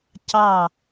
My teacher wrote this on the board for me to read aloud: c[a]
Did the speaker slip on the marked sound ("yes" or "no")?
yes